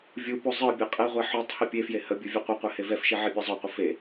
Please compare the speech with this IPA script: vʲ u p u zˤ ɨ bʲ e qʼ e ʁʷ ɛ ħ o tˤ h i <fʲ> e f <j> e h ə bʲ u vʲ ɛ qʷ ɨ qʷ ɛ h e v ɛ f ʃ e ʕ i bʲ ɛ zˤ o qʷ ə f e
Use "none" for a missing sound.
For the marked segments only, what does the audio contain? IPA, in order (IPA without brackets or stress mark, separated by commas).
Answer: pʲ, j